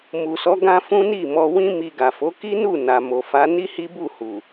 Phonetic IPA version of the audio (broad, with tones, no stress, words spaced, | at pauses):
mu˨sɔ˨˦ ɡã˧ fũ˦ni˦˨mɔ˧wĩ˦ mi˧ɡa˨fo˨˦ ki˦nu˦˨ na˨ mo˨fa˨˦ ni˦hi˦ bu˦˨hu˨